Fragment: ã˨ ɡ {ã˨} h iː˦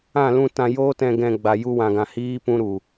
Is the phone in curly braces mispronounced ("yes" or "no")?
no